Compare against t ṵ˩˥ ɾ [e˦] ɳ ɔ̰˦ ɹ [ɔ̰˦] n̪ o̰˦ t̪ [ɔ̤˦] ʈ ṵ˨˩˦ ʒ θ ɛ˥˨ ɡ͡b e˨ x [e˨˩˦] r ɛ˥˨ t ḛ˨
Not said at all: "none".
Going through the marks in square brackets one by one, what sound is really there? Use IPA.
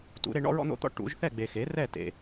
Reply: e˦, ɔ̰˦, ɔ̰˦, e˩˥

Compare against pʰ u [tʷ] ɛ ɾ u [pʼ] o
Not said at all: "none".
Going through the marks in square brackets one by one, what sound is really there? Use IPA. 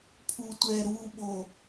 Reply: tʷ, ɓ

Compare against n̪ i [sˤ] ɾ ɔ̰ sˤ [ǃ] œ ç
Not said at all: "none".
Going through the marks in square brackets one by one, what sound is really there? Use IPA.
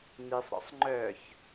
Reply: sˤ, ŋ͡ǃ

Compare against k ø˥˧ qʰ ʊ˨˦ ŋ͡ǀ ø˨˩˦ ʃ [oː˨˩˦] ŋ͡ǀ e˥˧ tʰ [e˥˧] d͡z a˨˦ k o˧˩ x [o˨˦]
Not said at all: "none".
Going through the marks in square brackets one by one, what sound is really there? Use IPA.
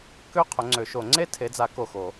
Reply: o˨˩˦, e˨˦, o˨˩˦

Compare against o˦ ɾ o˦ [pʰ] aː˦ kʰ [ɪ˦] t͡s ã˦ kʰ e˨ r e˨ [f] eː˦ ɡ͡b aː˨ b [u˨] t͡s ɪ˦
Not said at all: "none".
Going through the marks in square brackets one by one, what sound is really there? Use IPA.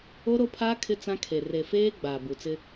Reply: pʰ, ɪ˦, f, u˨

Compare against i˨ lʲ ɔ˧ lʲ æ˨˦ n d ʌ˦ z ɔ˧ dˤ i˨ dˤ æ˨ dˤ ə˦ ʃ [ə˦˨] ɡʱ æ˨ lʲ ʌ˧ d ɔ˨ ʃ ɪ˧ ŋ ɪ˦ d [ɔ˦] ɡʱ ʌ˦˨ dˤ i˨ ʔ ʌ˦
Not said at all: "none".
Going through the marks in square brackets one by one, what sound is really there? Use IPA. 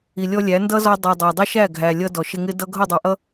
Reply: æ˦˨, ʌ˦

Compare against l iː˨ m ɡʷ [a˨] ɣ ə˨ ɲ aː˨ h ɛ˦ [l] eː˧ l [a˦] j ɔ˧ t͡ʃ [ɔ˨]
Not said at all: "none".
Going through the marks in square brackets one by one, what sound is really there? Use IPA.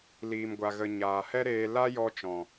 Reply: a˨, ɾ, a˦, ɔ̃˨

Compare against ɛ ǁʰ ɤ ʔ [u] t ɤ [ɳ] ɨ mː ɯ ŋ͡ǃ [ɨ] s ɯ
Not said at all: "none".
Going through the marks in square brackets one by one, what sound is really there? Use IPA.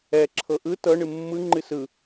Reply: ɯ, ɳ, ɨ

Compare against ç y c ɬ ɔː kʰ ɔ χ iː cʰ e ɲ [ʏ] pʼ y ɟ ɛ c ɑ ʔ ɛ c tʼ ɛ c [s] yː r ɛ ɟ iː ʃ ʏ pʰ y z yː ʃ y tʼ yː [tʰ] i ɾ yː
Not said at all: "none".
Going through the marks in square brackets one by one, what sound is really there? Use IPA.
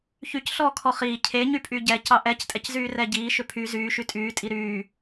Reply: y, z, tʼ

